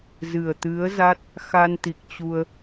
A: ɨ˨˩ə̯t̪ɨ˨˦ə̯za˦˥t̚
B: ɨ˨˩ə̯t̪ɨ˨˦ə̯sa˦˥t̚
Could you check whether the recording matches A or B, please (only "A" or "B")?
A